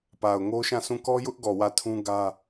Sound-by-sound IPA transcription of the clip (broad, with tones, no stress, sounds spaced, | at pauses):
p a˨ ʊ̯ ŋ o˦ ʃ ã˦˨ s ũ˦˨ k ɔ˦ j ʊ˦ ʔ ɡ ɔ˨ w ä˦˨ tʰ ũ˦ ɡ ä˦